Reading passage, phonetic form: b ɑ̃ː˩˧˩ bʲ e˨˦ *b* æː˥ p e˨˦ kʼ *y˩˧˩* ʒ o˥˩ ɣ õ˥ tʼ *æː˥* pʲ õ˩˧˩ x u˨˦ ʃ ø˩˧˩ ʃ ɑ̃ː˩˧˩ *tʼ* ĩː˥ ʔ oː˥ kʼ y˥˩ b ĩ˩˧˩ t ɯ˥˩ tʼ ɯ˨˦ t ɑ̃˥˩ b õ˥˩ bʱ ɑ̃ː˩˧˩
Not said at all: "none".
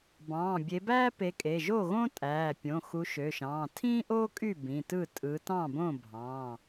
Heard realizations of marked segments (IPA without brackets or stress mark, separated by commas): b, e˩˧˩, æː˩˧˩, tʰ